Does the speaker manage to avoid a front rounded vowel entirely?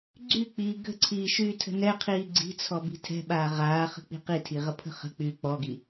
no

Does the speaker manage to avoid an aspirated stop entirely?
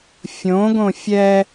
yes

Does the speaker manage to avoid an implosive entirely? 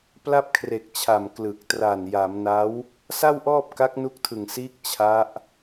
yes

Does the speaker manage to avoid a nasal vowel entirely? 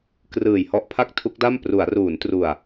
yes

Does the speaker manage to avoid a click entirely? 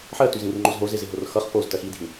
no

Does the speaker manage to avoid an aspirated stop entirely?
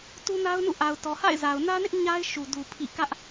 no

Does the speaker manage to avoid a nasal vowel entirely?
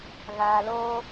yes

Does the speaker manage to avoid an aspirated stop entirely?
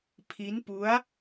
no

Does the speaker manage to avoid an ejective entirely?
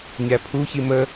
yes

